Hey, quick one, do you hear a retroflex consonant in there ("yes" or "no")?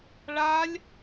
yes